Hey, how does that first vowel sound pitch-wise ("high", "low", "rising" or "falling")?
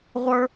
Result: high